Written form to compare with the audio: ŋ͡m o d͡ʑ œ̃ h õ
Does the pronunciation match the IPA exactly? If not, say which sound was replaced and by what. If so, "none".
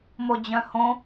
ŋ͡m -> m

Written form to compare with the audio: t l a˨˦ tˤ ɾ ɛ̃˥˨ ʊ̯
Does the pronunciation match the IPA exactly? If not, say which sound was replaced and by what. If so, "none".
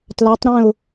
none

